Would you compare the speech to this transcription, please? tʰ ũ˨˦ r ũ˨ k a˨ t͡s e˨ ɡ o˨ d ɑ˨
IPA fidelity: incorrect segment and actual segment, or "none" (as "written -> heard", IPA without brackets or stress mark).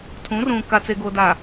ɑ˨ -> a˨